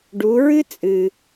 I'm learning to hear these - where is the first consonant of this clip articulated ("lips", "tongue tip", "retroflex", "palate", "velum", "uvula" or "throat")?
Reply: retroflex